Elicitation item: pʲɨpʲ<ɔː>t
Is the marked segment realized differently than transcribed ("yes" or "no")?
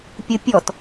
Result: yes